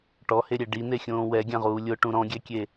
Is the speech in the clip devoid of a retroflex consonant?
no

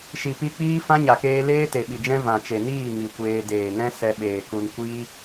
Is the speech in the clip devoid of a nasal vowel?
no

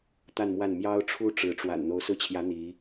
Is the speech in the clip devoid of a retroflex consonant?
no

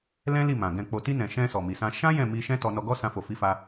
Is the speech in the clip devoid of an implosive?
yes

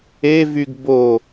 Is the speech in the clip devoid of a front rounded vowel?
no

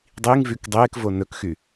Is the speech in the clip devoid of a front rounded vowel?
no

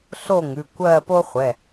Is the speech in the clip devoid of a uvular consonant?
no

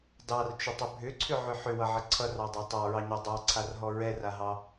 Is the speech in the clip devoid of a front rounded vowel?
no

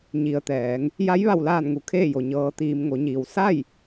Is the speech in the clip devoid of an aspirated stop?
no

